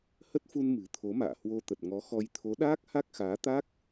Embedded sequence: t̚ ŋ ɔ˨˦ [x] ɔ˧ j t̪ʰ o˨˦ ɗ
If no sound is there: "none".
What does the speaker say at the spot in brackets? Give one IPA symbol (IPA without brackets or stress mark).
x